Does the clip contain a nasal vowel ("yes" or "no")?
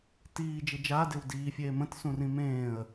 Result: yes